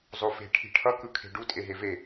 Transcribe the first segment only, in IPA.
zˤ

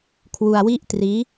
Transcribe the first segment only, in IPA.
kʰ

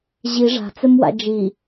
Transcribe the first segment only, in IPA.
ʑ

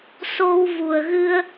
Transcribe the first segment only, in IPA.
s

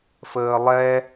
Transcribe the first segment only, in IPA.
f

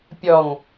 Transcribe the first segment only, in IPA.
pʲ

